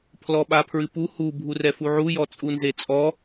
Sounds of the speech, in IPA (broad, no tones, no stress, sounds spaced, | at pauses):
pʰ l ɔ ɓ a pʰ ɹ ɨ p u h u bʱ u r ɛ f u ʕ u j ɔ t͡sʼ u n z e t͡sʼ ɔ